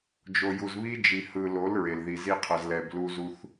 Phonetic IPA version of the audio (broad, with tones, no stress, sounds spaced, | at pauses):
d͡ʒ o˨ j u˨ z β i˦ d͡ʒ i˨ h ɯ˨ l o˨˦ l ɹ e˨ l ð i˨ z i˦ qʰ ʌ˨ z l ɛ˨ b l u˦ z u˦ θ